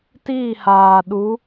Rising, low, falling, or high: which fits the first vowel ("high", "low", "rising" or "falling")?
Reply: falling